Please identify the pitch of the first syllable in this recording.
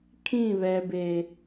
falling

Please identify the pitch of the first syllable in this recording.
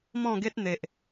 falling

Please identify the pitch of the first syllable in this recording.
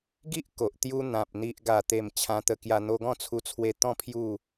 high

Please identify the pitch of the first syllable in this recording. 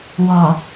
low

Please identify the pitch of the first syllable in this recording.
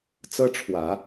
high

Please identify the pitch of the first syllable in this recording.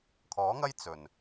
rising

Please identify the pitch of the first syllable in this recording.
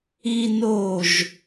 high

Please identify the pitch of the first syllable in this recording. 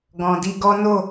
low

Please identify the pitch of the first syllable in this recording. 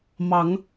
rising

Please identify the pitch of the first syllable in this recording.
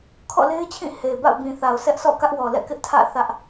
falling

